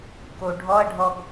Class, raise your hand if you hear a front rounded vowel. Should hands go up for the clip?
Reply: no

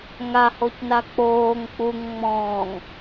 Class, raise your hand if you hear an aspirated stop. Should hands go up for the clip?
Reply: no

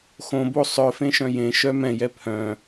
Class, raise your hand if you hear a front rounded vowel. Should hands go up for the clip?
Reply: yes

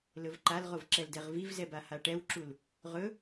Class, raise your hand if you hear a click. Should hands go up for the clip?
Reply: yes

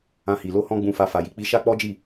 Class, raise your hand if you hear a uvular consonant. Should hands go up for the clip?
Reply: no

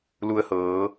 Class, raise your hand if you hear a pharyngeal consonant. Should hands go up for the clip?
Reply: no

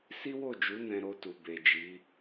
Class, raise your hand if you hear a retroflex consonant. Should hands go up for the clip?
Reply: no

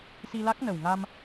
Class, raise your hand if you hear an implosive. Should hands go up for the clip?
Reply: no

